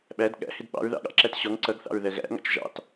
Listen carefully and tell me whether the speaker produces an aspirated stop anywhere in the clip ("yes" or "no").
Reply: no